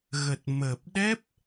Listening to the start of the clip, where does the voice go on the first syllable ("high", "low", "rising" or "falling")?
low